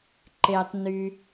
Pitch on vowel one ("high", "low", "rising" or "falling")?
low